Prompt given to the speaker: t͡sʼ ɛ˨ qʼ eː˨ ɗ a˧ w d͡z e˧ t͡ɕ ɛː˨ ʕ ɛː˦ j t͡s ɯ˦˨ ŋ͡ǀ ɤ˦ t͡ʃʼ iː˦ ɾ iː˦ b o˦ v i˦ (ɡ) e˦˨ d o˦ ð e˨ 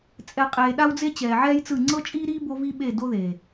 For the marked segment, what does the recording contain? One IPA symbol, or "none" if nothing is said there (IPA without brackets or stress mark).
ɓ